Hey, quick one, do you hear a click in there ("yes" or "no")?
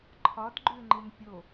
yes